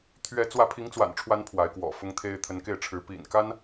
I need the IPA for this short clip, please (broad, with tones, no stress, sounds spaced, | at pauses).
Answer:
t̪ʰ ɥ ɛ˧˥ t͡s w ä˧˥ pʰ i˧˥ ŋ t͡s w a̰˨˩ n ʈ͡ʂʰ w a˧˥ n pʰ w a˧˥ ɪ̯ k w ɔ̰˨˩ f ʊ˥ ŋ t̪ʰ e˥ ɪ̯ t̪ʰ ə˧˥ n k e˥˩ ɪ̯ ʈ͡ʂʰ ɻ̩˧˥ p ḭ˨˩ n k a˥ n